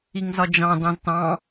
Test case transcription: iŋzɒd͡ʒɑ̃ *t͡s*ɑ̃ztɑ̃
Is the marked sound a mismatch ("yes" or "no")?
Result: yes